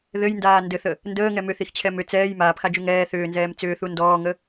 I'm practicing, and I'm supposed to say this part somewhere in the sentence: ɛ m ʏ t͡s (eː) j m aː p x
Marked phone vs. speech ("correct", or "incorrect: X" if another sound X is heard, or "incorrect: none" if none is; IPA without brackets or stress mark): incorrect: ɛː